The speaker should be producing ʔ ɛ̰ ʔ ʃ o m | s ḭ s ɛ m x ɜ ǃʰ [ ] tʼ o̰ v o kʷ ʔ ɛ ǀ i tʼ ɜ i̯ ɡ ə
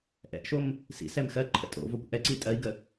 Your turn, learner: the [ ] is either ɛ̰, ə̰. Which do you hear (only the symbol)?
ə̰